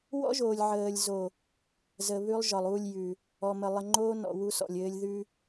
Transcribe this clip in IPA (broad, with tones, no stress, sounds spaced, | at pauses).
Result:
w ɔ̰˦ ʒ oː˨ lʲ ʕ əː˨ lʲ z o˨ | z ə˨ β ʉ˦ lˠ ʒ ɒ˨ lˠ u˦˨ lʲ j ʉ˨ | ɔ˨ m ə˨ lˠ ə˨ ŋ͡ǃ oː˦ n ɔ̰˨ w u˦ s ɔ̰˨ lʲ ɘː˦ lʲ ð ʉ˦